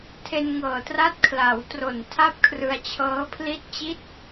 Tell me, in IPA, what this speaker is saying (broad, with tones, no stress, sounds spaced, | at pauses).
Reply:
tʰ e˧ n ŋ ɤː˨˩ t r a˦˥ t̚ kʰ l a˩˦ w t r o˨˩ n tʰ a˥˩ p̚ kʰ r ɯ˧ a̯ t͡ɕʰ ɤː˦˥ pʰ l i˥˩ t̚ t͡ɕ i˦˥ t̚